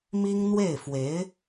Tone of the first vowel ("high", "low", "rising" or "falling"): high